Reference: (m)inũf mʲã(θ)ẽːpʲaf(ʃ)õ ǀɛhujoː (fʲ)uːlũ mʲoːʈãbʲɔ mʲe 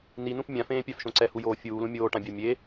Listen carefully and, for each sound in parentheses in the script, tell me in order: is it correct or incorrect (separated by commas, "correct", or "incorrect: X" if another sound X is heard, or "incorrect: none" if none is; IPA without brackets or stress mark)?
incorrect: n, incorrect: f, correct, correct